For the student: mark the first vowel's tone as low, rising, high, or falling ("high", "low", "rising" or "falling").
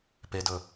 low